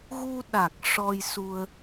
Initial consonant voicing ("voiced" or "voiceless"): voiced